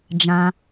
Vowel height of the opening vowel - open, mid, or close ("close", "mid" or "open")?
open